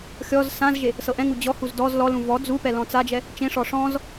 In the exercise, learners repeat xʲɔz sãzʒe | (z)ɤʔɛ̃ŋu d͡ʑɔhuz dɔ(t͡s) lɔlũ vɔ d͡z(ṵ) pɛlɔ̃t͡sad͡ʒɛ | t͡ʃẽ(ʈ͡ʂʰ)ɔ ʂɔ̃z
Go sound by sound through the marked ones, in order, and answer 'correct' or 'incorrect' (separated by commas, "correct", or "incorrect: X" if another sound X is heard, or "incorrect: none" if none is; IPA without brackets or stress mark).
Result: incorrect: s, incorrect: z, incorrect: u, incorrect: ʂ